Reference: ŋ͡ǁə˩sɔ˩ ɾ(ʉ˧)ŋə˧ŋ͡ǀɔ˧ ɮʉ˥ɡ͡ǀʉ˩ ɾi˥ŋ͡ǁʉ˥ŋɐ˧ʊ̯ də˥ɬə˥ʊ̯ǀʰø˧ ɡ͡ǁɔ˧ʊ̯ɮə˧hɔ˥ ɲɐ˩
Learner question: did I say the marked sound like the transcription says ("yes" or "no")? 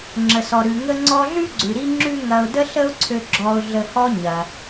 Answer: no